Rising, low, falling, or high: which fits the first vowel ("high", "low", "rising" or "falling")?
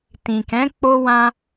low